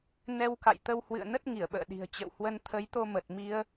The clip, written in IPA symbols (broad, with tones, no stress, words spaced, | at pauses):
nɛ˧wka̰˧˨jt̪ə˧whwɨ̰˧˨ə̯ nə˦˥t̚ŋi˧˩ə̯ɓə̰ː˧˨ɗi̤˨˩ə̯ t͡ɕə̰˧˨whwə˧n t̪ʰə˨˦jt̪o˧mə˨˩t̚ mi˧ə̯